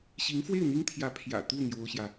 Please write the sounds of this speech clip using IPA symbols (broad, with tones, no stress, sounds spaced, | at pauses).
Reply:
ɕ i˧˥ ŋ f w e˥˩ ɪ̯ n̪ i˥ ŋ t̪ʰ j ä˧˥ pʰ j ä̰˨˩ t̪ u˥˩ n̪ j o˥ ʊ̯ ɕ j ä˨